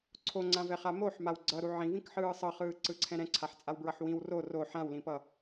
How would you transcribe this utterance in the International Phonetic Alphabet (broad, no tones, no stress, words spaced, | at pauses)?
ǀʰoŋ͡ǀãvɛχa moħmaw ɡ͡ǀʌɾu ʕĩvĩkħɯː sˤʌχɯːǀɯǀʰɛ̃ ɾɛ̃ǀʰaħt͡sʼawbɹʌħ wĩw ro ro ħãwlĩpʌ